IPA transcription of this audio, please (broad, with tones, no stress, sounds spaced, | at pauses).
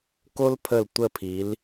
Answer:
k o˦ l pʰ ə˧˩ l tʷ ə˧˩ pʰ i˩˧ l